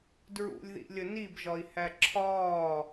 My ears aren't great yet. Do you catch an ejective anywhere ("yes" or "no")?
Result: no